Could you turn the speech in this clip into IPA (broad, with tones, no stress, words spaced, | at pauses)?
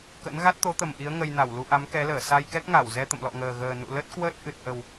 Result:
kə̰˧˥n ɣa˦˥t̚t̪o˨˦t̪ə˨˩m ʔi˨˦ə̯ ŋə˧jna˧˩w lu˧ʔa˨˦mkɛ˨˦ləː˧˩ sa˧jkɛ˦˥k̚ŋa˧˩w zɛ˧t̪ə̰˧˨mlɔ̰˧˨ŋəː˨˩ ɣəː˨˩nṵ˧˨ lə˦˥t̚kwəː˦˥t̚ ʔɨ˨˩t̚ʔə˨˩w